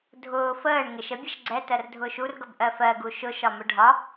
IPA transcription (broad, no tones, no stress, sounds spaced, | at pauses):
dʱ ʊː f əː ɳ ŋ ɪ ʃ ə bʲ ʌ ʃ ɡ͡ǀ ɛ t ɜ r dʱ ʊː ʃ u r ɡ ʌ b ʔ ɜ f ɜ ɡ u ʃ ʊ ʃ ɒ m ʊ ɖʱ ɒ